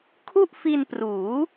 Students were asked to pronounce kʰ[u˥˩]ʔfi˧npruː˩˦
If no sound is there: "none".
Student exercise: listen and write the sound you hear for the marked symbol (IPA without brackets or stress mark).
u˥˩